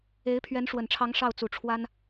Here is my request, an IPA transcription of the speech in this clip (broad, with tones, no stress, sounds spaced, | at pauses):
e˧˥ ɪ̯ pʰ ɥ ɛ˧˥ n ʂ w ə˨˩ n ʈ͡ʂʰ ɑ˧˥ ŋ ʂ ɑ˥˩ ʊ̯ t͡s u˨˩ ʈ͡ʂʰ w a˥ n